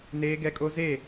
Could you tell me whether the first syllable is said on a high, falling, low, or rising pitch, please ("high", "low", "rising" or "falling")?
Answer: high